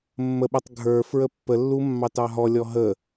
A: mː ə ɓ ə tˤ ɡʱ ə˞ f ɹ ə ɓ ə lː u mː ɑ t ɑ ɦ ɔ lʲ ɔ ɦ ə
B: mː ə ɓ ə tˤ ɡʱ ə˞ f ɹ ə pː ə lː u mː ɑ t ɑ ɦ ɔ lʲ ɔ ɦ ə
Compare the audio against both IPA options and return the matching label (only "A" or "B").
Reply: B